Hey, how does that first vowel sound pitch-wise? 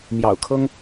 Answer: low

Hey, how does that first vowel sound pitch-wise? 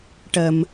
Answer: low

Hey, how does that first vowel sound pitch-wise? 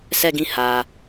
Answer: falling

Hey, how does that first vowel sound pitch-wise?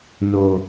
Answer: low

